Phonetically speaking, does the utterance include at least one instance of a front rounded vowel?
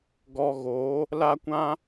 no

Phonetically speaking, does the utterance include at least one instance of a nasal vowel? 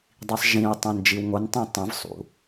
yes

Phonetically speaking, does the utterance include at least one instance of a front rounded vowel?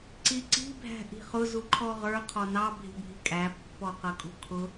no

